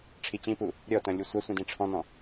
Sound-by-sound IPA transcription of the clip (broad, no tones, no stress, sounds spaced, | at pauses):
ʈ͡ʂʰ i t͡ɕ ĩ p u | ɾʲ ɔ t ɐ̃ lʲ u sʷ ɐ sʷ ĩ d ĩ ʈ͡ʂʰ ɔ̃ n ɔ̃